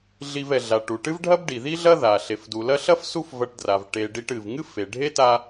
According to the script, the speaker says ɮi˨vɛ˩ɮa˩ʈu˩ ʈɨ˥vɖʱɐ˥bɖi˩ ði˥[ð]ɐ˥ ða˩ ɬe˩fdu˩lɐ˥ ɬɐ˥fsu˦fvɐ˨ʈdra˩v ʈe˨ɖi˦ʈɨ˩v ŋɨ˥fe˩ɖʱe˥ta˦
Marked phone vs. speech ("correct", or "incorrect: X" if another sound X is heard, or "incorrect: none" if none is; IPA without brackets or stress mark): incorrect: ɮ